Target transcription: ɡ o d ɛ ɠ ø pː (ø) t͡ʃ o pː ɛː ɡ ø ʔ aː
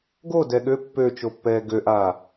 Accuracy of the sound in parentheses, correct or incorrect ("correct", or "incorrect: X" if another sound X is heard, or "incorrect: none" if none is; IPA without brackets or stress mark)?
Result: correct